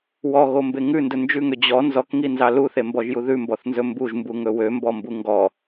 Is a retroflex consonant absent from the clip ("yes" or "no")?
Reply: yes